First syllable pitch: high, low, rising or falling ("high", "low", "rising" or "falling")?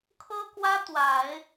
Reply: high